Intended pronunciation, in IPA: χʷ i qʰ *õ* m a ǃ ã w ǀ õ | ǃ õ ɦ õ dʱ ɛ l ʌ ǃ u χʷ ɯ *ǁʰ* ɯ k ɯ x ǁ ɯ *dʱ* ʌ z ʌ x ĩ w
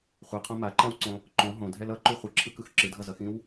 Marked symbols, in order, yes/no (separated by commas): yes, yes, yes